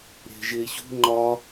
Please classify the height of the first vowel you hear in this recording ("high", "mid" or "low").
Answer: mid